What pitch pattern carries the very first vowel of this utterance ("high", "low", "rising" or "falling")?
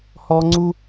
high